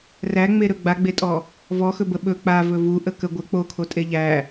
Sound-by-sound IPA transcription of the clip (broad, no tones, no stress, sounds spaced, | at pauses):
r æ ŋ͡m e ɾ ɵ ɡ͡b a ɡ͡b e tʼ ɔ | v ɔ x ɵ b ə ɓ ɵ k͡p a v ɵ v u ʔ ə k ə ɡʷ ə k͡p o kʰ o tʼ e ʎ æ